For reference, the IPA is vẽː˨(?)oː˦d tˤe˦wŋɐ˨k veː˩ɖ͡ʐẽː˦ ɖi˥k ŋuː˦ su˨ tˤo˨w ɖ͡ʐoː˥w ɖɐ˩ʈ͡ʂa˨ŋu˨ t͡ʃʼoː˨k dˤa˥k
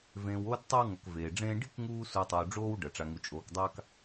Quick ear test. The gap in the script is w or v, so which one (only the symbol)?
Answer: w